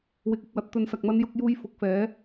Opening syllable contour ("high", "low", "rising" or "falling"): rising